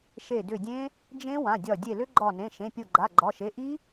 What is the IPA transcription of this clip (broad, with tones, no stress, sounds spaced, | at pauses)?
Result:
ʃ e˧˩ d ʏ˧˩ dʲ ẽ˦˥ | d͡ʒ ẽ˦˥ w ã˩˧˩ dʲ ɒ˧˩ dʲ e˧˩ l ʏ˦˥ ɡ͡ǃ ɒ˧˩ n ẽ˩˧˩ ʃ ẽ˩˧˩ pʲ o˧˩ ɡ͡ǃ a˩˧˩ ɡ͡ǃ ɒ˩˧˩ ʃ e˩˧˩ ʔ i˦˥